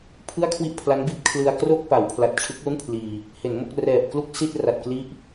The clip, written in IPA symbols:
pʰ ɯ˥˩ a̯ kʰ w i˥˩ ʔ pʰ l a˦˥ n b i˦˥ t̚ kʰ l ɯ˧ a̯ k r o˥˩ k̚ p a˩˦ w pʰ l a˨˩ t̚ t͡ɕʰ ɯ˦˥ k̚ l u˥˩ n pʰ l iː˧ | h e˩˦ n m o˥˩ k̚ r ɛː˨˩ p̚ k l u˥˩ k̚ s i˥˩ t̚ r a˨˩ t̚ k l i˥˩ ʔ

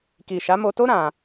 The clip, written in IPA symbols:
k i˨ ʃ a˨˦ m o˧ t o˦ ɾ ã˧

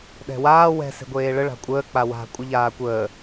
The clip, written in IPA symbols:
ɗ ɛ̤ w aː w ɛ̤ s e̤ ɡʷ eː ɭ ə ɭ a̤ kʷʼ əː k͡p a w a̤ kʷʼ ɨ ʎ aː kʷ əː

